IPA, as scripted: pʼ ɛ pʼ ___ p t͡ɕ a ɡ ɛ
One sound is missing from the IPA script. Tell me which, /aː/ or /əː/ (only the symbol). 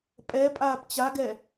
aː